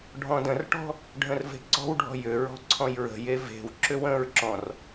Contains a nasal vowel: yes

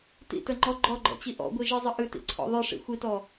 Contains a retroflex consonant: yes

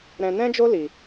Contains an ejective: no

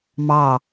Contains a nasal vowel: no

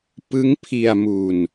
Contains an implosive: no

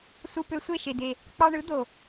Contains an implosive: no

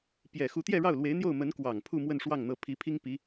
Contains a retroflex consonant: yes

